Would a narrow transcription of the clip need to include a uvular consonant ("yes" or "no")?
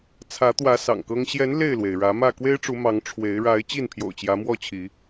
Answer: no